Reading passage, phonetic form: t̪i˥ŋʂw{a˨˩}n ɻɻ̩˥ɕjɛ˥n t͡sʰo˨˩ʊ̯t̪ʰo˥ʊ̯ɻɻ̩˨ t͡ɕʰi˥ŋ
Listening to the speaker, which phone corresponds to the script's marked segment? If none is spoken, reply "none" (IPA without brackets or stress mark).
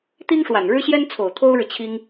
a˨˩